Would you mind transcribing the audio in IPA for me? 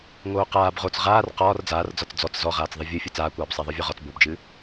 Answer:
ŋ oː q aː b ʁ o t͡s ʁ aː r q ɒː r d͡z aː r d͡z ɒ t͡s d͡z ɔ t͡s z ɔ ʁ aː t͡s ðˤ ɨ vʲ ɨ fʲ ɨ t͡s aː kʷ aː b sˤ æ ðˤ ə˞ vʲ ɒ ʁ ɒ t͡s b o b d͡ʒ ɨ

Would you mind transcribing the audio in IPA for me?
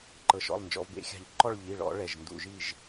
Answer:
ǃ ɤ˩˧ ʃ ɔ̰˩˧˩ lˠ n d͡ʒ ɔ̰˩˧ v b ḛ˨˥ xʲ a̤˧˩˧ ʎ ǃ ɔ˥˨ ɭ ʎ i˩˧˩ ɭ ɔ̰˧˩˧ ɭ ɛ˩˧˩ ʒ n d ṵ˧˩˧ ʒ i˥˨ ʒ

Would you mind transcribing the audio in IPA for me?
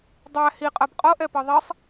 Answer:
dˤ æ h i qʼ ɜ b qʼ ɤ ʔ ɛ p ɤ ðˤ i sˤ

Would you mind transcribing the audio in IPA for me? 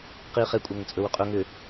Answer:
q i χ e kʷʼ ɐ ŋ ə t͡sʼ ɵ w ʏ qʼ ɵ ŋ ʏ

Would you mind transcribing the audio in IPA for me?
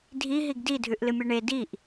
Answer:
dʱ i ɦ i ɡ d i dʱ ʉ ʔ l ɨ mʲ o ɳ e d i ʔ

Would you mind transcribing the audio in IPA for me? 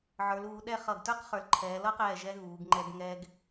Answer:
ʕ ə˞˩˧ l uː˩˧ ɗ ɛ˥˧ χ ʌ˧˩ ɡ t ə˞˥ q χ ə˞˩˧ l ǃʰ ɛː˩˧ l ʌ˥ q ɛː˧˩ ʒ ɛ˧ ɣ uː˩˧ ɡ ŋ͡ǃ ɛ˧ ɡ ŋ ɛː˧ ɡ

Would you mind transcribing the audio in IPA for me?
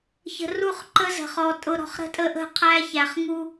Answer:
ç ə̤˨ r u˦ χ ǃ ə˦ z ə̤˨ χ ɔ˨ tʼ ʊ˨ ɾ ɔ̤˨ χ ɾ ə̤˦ tʼ ə˦ ʔ ə̤˦˨ qʰ æ˦ ç æ˨ χ ŋ u˦

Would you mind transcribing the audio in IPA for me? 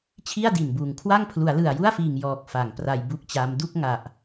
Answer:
t͡ɕʰ i˥˩ a̯ d i˨˩ n b uː˨˩ ŋ kʰ w a˥˩ ŋ pʰ l u˩˦ a̯ l ɯ˨˩ a̯ j u˥˩ a̯ f iː˨˩ ŋ j ɔː˨˩ k̚ f a˩˦ ŋ p r a˧ j b u˥˩ k̚ t͡ɕ a˦˥ m d u˥˩ k̚ ŋ a˨˩ ʔ

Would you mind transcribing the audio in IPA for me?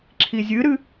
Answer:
ǁʰ i zʲ ɨ ɾ ɨ

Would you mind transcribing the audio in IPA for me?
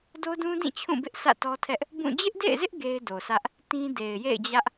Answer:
d o˦ d ũ˦ d ĩ˦˨ t͡ɕʰ ũ˦˨ b ɪ˦ ʔ sʰ ä̰˦˨ t ɔ˦ tʰ ɛ˦ ʔ | b ũ˦˨ d͡ʑ ɪ˦ ʔ d ḛ˦˨ ɪ̯ z ɪ˦ ʔ ɡ e˦ ɪ̯ d o˨ sʰ ä˦ ʔ | t ĩ˦ d e˨ ɪ̯ j ḛ˦˨ ɪ̯ d͡ʑ ä˦ ʔ

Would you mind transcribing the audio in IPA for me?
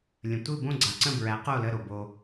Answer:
lʲ ə̃˩ tʷ ɯ˥˩ b õ˥˩ ɡ͡ǀ a˩ ǀ ə̃˥˩ b ɹ æ˩˥ q o˥˩ l ə˥˩ ɾ o˩ b o˧

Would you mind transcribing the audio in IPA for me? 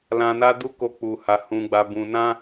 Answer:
l ã˧ n a˦ d u˦ k o˧ k͡p u˨ h a˨ h ũ˨ ɡ͡b a˨ b ũ˨ n ã˧

